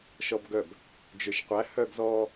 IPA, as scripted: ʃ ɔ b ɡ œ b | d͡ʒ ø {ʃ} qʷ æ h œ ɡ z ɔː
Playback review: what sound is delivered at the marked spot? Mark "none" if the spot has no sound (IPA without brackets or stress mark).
ʃ